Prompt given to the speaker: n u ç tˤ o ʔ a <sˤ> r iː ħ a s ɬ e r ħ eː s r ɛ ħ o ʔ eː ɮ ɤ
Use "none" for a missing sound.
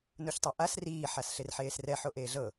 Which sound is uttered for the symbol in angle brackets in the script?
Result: s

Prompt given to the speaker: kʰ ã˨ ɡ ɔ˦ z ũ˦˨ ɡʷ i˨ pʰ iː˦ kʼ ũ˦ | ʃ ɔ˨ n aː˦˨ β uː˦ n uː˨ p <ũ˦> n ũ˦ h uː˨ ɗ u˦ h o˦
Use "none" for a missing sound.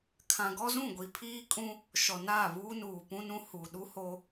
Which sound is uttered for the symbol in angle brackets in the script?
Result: ũ˦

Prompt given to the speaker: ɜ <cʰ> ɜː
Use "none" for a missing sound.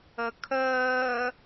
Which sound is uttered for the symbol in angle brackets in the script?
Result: kʰ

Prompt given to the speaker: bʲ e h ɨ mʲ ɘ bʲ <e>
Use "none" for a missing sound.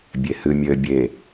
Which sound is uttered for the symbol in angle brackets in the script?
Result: e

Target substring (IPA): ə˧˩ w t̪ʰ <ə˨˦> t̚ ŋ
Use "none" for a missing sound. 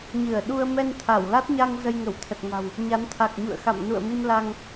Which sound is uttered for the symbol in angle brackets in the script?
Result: ə˨˩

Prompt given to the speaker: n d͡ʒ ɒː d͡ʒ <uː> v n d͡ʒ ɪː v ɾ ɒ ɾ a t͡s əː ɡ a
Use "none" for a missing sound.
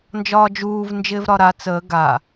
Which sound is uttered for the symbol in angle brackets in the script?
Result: uː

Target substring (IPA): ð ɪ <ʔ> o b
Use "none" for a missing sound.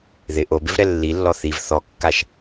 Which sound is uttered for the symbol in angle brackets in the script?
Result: ʔ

